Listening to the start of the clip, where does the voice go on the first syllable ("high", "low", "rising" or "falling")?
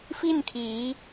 falling